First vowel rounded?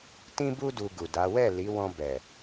no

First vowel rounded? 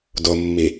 yes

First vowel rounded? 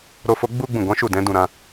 yes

